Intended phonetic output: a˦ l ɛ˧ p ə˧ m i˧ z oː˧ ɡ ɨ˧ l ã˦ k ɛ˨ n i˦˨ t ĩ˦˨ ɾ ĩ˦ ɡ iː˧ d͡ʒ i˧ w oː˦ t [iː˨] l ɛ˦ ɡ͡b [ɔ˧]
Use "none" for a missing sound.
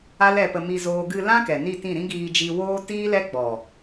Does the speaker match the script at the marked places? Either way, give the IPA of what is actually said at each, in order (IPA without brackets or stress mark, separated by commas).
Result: iː˦, ɔ˨